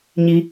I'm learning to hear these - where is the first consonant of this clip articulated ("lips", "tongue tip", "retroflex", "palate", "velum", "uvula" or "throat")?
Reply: palate